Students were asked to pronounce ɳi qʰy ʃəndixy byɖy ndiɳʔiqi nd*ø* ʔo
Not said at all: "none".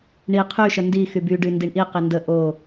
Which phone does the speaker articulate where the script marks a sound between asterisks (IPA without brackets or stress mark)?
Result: ə